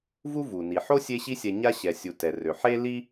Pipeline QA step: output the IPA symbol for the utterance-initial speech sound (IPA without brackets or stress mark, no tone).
v